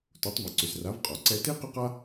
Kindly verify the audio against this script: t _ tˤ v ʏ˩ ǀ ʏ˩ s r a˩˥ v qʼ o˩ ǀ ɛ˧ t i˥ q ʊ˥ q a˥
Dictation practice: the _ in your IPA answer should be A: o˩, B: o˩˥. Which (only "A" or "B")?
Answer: B